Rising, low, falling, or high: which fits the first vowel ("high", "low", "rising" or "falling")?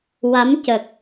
rising